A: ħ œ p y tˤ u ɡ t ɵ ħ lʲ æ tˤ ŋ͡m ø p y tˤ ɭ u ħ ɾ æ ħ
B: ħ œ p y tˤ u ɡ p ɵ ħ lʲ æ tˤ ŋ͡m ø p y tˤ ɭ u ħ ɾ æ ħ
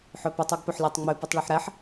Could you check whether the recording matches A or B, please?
B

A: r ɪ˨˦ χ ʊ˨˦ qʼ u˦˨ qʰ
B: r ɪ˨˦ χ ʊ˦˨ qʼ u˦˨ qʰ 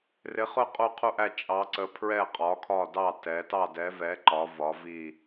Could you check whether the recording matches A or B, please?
B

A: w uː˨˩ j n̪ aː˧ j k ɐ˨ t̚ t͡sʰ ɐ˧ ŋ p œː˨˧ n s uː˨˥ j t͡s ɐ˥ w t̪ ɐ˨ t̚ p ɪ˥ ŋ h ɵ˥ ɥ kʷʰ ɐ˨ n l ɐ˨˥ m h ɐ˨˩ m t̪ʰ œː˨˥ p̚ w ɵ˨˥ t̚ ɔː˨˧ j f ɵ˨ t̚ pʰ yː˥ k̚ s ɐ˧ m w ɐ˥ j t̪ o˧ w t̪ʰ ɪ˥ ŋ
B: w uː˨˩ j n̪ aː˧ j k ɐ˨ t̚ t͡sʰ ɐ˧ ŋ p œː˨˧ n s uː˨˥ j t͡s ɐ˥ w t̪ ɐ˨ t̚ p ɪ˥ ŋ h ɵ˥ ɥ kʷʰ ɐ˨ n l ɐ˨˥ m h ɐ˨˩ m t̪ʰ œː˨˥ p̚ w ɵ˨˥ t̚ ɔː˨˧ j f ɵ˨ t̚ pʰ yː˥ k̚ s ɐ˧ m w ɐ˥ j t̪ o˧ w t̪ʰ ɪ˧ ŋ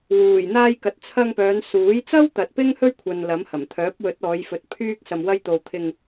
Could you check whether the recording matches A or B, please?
B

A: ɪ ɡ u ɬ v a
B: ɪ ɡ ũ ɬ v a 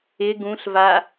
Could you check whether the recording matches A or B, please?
B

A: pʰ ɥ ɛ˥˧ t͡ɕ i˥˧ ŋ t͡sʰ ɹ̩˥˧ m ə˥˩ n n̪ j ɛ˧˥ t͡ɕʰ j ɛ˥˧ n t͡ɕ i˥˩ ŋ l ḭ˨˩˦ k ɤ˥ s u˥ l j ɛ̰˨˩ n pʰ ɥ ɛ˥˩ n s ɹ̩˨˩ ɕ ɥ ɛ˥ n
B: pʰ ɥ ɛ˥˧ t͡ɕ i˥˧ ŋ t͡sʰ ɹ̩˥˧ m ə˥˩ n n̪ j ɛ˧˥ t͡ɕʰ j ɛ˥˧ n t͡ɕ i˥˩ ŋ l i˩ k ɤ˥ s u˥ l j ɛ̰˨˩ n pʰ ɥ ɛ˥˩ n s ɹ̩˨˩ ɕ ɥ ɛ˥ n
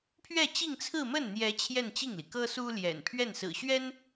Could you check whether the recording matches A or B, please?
B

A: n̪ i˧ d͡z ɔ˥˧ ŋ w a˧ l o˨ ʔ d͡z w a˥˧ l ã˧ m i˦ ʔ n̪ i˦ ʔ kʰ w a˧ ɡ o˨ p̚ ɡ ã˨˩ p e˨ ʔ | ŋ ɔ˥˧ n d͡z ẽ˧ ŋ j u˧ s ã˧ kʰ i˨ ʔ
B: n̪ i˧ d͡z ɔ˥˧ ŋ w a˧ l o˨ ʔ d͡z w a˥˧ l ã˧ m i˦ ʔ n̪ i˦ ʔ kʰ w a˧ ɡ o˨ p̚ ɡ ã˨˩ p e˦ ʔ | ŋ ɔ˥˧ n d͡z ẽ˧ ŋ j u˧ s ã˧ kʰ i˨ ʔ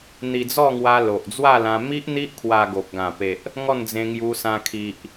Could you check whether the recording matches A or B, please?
A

